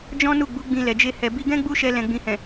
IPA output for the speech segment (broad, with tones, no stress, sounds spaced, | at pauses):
d͡ʒ ɔ̃˦ n u˦˨ ɡ͡b u˨˦ ɡ͡b ĩ˧ l ɛ˨ d͡ʒ e˧ h ɛ˨ b i˧ ɡ ɛ̃˦ ɡ͡b u˦ ʃ ɛ˧ l ɛ̃˨ ɡ͡b ĩ˨ h ɛ̃˨